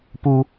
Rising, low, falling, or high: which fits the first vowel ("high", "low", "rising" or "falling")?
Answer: high